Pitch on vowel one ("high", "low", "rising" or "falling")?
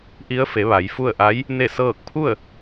rising